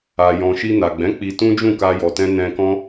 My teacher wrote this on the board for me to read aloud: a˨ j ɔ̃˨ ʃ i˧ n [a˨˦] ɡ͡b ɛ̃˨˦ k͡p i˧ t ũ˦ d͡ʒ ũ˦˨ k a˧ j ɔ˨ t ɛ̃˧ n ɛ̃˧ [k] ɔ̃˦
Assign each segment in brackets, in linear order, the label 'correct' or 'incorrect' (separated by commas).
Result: incorrect, correct